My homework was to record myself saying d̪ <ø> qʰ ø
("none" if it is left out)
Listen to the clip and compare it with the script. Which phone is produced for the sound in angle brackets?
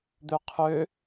ø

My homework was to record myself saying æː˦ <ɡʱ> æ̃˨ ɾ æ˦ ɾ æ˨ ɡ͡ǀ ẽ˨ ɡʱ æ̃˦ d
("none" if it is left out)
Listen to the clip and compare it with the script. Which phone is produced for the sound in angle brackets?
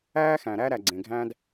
x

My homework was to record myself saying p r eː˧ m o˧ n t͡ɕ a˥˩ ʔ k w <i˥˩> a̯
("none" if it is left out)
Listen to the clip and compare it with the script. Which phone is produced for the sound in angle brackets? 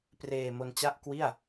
i˥˩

